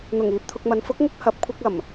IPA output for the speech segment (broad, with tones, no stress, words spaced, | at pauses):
n̪ʊ˨˩ŋ iː˨p̚t̪ʰʊ˧k̚mɐ˨˥n fʊ˨˥k̚ŋʊ˧k̚ hɐ˨p̚kʷʰɪ˧k̚ɐ˨˩m